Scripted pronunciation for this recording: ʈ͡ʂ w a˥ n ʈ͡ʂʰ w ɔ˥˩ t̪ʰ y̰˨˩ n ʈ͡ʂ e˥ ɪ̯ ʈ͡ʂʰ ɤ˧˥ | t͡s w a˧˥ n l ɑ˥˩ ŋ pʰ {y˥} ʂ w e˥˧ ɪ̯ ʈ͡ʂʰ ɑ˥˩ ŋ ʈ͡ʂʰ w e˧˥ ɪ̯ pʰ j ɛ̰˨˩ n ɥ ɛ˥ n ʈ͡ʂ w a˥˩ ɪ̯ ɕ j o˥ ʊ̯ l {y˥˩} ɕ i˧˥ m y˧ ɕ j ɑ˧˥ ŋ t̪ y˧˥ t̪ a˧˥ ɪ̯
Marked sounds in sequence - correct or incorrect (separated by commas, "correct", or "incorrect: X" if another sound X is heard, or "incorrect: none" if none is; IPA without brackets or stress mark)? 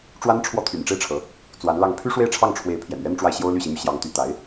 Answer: correct, correct